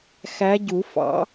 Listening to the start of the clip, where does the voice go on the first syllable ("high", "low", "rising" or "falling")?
rising